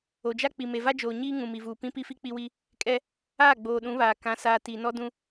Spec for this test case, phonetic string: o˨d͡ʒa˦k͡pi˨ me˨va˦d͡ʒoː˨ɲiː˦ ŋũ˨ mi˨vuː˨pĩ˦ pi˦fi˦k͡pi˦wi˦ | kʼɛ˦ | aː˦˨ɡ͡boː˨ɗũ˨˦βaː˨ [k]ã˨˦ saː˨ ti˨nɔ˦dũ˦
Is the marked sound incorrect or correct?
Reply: correct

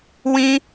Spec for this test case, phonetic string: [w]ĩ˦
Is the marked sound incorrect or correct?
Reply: correct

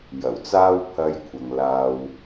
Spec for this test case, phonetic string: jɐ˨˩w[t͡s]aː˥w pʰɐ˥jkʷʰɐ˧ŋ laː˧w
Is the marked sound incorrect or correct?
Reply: correct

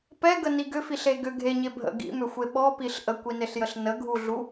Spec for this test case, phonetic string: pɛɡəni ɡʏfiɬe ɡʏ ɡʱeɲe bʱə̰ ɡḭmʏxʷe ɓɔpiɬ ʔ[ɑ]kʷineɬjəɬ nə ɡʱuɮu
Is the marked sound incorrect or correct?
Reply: incorrect: ə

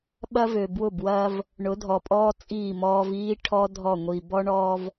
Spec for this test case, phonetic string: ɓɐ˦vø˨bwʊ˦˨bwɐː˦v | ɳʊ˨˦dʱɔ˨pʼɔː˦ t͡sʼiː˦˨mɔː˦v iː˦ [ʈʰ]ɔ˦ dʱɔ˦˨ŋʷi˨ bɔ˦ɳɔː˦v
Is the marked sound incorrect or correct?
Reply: correct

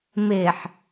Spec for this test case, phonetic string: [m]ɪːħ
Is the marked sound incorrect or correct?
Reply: correct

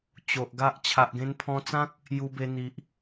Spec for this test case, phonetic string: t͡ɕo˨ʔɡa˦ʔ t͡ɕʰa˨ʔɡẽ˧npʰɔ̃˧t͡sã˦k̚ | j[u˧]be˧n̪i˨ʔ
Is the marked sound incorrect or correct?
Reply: correct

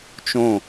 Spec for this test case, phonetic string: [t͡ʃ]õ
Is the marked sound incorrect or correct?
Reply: correct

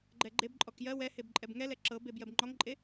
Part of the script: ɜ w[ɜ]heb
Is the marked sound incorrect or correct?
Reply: incorrect: ɛ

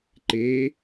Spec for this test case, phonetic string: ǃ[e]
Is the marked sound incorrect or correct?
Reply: correct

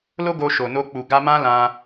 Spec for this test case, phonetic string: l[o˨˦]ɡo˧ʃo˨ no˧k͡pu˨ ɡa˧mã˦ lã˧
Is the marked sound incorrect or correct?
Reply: incorrect: o˦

